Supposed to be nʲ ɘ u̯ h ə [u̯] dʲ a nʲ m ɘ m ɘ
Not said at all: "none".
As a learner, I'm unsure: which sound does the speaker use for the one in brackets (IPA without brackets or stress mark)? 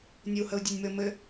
u̯